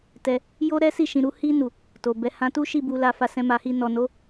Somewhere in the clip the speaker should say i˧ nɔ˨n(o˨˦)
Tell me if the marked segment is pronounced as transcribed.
yes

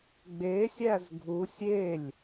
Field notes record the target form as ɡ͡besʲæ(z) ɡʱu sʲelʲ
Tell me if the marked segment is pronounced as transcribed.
yes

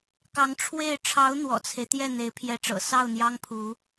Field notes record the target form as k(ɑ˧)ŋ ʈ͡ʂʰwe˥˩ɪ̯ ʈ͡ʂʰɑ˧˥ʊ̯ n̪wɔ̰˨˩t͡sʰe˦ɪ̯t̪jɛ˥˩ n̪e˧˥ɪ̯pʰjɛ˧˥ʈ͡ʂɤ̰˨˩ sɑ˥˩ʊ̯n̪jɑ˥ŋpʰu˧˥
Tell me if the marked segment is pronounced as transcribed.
no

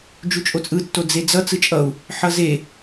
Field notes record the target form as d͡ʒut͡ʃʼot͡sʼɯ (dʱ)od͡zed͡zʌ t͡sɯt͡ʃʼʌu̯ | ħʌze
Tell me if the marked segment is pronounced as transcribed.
no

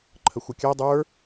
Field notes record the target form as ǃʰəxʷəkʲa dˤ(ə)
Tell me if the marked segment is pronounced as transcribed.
no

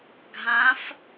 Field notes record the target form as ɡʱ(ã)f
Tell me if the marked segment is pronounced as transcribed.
yes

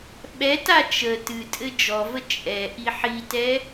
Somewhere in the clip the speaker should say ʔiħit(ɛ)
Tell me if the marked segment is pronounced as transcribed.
yes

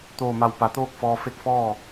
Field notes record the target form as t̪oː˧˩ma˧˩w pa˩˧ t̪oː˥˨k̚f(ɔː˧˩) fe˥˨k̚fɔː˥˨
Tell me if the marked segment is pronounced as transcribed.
no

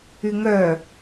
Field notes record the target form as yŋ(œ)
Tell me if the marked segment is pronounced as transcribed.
yes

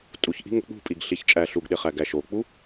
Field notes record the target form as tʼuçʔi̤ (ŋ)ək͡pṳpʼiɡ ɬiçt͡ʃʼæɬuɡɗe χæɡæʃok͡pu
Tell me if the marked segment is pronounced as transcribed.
yes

